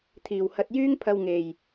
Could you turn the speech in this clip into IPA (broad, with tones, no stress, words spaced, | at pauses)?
t̪ʰiː˨whɐ˧t̚jyː˥ŋpʰɐ˧w ŋe˨j